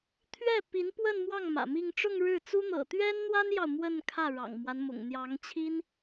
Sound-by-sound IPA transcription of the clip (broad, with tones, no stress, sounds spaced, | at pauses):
t̪ʰ ɥ ɛ˥˩ p i˧˥ n p w ə˥˧ n m w ɑ˥˩ ŋ m ä̰˨˩ m i˥˧ ŋ ʈ͡ʂ ʊ˥˧ ŋ ɻ ɻ̩˥˩ t͡s u˥ n̪ ɤ̰˨˩ t̪ ɥ ɛ˥ n n̪ w a˥ n j ɑ˨ ʊ̯ m w ə˥˧ n kʰ ä˥˩ ɻ ɑ̰˨˩ ŋ m w a˦ n m ʊ̰˨˩ ŋ n̪ j ɑ˧˥ ŋ t͡ɕʰ i˥ n